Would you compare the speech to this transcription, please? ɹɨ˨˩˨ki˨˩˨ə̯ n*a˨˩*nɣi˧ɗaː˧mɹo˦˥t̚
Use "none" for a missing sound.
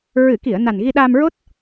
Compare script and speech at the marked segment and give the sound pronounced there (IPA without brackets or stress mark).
a˨˩